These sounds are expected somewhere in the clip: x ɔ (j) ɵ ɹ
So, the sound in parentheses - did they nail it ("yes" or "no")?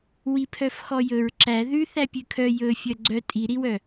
yes